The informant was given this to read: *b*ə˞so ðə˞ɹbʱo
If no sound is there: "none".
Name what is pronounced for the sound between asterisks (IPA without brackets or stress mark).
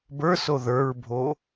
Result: b